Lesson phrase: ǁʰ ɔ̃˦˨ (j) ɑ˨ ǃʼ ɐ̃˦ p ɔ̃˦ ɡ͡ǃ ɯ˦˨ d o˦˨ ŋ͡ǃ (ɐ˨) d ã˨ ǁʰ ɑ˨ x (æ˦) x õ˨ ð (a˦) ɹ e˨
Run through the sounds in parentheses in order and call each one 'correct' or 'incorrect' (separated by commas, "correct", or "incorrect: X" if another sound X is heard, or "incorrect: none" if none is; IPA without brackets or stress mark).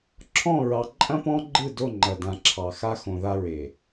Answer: incorrect: ɹ, correct, incorrect: a˦, correct